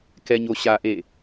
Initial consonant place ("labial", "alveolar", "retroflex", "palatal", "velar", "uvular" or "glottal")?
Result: velar